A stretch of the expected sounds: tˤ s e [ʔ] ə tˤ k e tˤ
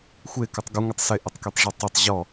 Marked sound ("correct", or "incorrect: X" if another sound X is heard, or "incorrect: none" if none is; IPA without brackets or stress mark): correct